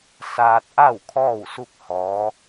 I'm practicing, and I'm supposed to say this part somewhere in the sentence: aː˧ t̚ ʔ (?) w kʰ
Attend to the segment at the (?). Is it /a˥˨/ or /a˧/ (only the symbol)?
a˥˨